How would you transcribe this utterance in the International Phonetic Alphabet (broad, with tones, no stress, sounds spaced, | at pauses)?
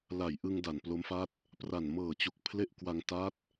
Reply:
l a˨˩ j ʔ ɯ˧ ŋ d a˨˩ n p l o˦˥ m f a˥˩ t̚ | p r a˨˩ n m ɤː˨˩ t͡ɕ u˨˩ k̚ pʰ l e˥˩ ʔ k w a˧ ŋ t a˦˥ t̚